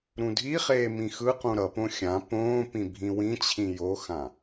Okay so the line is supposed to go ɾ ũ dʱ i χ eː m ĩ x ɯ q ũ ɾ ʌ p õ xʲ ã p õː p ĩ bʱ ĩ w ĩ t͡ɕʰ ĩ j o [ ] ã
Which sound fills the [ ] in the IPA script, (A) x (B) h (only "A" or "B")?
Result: A